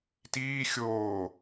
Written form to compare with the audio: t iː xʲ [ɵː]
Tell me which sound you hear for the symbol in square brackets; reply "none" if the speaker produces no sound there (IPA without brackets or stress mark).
oː